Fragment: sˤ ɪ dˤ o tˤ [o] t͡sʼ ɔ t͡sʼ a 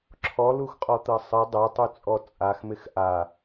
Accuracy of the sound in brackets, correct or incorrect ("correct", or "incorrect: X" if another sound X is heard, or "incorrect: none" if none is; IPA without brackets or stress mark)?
incorrect: u